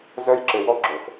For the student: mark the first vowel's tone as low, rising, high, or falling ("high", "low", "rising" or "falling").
high